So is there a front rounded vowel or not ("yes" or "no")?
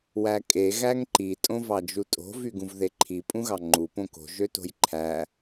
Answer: yes